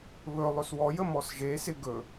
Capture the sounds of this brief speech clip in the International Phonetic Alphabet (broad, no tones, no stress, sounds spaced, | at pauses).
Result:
β ɵ lˠ ɵ s w ɔ j ə m ɔ s ʒ e s ɪ ɡ ɵ